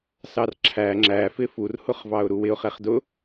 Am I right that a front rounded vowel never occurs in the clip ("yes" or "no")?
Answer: yes